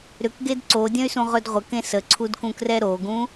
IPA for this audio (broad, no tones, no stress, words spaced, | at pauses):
ɾʏkɡed ǀodʲə̃y̯sũʁɵd ʁʷəkẽ səǀʰudkũkrɛ ɾoɡũ